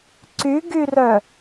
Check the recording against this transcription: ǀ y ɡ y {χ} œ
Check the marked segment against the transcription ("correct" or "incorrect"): incorrect